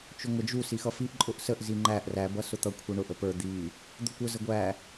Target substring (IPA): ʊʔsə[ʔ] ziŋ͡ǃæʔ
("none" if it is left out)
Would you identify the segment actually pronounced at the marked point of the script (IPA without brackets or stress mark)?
ʔ